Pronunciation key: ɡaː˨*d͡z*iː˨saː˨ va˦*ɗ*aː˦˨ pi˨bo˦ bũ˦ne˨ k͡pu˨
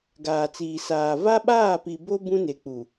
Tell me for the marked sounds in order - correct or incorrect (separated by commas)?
incorrect, incorrect